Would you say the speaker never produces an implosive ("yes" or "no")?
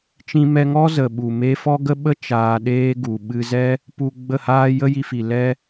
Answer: no